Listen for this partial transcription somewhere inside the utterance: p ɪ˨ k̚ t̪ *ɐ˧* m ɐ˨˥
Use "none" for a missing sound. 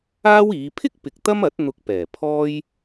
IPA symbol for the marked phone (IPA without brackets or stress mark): ɐ˥